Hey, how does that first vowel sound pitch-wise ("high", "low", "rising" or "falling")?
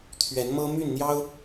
rising